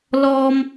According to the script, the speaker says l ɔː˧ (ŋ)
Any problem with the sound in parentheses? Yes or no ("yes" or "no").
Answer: yes